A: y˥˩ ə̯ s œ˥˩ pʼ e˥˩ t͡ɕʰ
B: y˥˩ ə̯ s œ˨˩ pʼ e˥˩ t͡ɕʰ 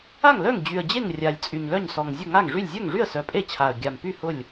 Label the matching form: B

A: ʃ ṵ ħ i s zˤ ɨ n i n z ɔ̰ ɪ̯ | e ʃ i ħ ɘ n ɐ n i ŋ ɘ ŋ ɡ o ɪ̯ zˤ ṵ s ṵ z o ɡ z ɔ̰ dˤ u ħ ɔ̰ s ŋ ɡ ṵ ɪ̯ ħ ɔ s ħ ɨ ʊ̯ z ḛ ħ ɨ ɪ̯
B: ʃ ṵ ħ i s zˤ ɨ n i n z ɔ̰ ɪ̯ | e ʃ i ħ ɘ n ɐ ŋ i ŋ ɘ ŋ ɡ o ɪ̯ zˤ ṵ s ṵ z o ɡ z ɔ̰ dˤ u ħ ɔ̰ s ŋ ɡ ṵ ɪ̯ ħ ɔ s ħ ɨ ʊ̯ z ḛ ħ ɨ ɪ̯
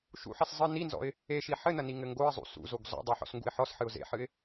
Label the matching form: A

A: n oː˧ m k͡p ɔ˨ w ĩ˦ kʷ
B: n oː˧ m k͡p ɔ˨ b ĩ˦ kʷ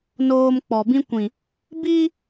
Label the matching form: B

